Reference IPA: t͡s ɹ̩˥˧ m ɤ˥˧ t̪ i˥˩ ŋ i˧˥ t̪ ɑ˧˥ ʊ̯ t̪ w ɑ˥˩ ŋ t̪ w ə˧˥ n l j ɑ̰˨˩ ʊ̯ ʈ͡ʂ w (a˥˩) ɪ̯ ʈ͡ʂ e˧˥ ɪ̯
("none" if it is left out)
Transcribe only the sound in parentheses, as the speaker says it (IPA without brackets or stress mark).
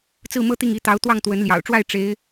a˥˩